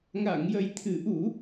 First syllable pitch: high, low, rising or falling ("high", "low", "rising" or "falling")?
low